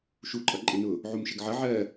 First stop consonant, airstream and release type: click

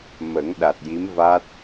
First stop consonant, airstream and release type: implosive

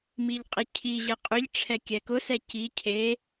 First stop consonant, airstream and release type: ejective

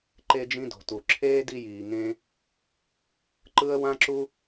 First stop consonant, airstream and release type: click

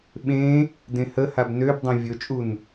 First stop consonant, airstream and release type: implosive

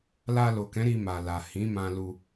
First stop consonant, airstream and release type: plain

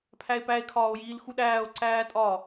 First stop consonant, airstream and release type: aspirated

